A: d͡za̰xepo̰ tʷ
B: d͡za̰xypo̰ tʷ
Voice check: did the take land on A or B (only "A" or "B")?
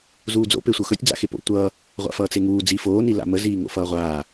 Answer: A